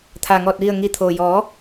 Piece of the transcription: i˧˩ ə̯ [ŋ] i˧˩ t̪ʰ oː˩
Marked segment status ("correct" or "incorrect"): correct